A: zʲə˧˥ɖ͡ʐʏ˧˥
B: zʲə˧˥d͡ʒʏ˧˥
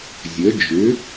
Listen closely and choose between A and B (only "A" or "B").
B